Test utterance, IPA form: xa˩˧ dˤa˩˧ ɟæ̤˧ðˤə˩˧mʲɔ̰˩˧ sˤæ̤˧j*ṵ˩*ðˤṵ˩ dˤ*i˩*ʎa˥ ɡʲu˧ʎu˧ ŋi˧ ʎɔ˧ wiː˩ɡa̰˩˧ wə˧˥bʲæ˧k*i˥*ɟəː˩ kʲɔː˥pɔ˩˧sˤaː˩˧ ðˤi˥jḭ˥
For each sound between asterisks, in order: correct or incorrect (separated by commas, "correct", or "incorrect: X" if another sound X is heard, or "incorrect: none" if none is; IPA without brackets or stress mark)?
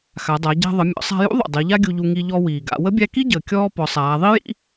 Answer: incorrect: ṵ˧˥, incorrect: i˩˧, correct